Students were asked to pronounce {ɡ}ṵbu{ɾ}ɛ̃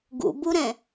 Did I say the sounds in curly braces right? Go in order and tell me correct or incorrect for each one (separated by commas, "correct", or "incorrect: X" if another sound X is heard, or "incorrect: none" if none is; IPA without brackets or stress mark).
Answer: correct, correct